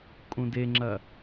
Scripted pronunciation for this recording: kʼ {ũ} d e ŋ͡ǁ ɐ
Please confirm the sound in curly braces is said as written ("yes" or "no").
yes